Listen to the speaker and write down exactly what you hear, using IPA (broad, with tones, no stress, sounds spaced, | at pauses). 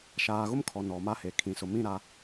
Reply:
ʃ aː˨ ɣ ʊ˦ m kʰ ɔ˨ n ɔ˨ m a˦ h e˨ kʰ ĩ˨ s ʊ˨ m ĩ˦˨ ɾ a˦